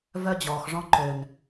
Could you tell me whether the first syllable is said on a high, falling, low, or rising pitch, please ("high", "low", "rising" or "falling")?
high